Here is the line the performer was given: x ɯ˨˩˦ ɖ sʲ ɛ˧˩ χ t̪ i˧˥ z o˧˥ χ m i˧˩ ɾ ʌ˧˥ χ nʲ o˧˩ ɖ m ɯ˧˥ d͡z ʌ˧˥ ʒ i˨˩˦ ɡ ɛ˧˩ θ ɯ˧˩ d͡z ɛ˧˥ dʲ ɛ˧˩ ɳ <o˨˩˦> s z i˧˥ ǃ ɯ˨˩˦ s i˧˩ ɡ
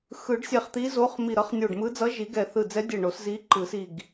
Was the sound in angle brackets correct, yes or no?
yes